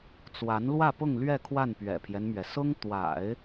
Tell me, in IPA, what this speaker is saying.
t͡s w a˧˥ n l w ä˥˧ p ʊ˥˧ ŋ l ɥ ɛ˥˧ kʰ w a˥˩ n p ɥ ɛ̰˨˩ pʰ j ɛ˦ n m ɥ ɛ˩ s ʊ˥ ŋ t̪ w a̰˨˩˦ ɪ̯

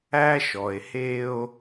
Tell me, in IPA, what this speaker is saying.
æ˦ ʃ ɔ˨ e̯ h e˦ o̯

